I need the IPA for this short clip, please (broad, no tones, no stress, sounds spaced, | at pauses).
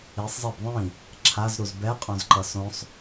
i sˤ zˤ e b ðˤ ĩ | ǁʰ a z ɾ u z b ɛ qʼ õ z ǃ ʌ s õ sˤ